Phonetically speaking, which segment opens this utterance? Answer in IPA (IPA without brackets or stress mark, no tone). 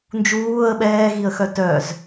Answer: n